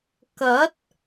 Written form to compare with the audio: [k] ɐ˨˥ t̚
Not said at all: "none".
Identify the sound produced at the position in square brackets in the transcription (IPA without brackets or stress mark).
k